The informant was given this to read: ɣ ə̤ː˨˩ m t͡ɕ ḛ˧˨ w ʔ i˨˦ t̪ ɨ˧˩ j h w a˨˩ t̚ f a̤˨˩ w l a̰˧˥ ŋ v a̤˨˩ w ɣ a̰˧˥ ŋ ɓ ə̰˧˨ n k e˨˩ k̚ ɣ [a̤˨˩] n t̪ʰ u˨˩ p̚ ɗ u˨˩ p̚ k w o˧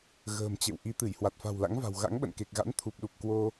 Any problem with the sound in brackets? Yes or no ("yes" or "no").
yes